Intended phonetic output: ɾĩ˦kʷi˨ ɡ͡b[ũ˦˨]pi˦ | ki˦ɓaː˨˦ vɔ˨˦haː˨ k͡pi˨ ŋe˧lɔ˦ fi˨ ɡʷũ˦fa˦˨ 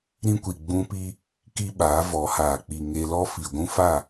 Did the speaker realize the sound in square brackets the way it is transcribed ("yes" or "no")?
no